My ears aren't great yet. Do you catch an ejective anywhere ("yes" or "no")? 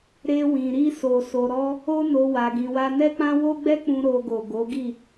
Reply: no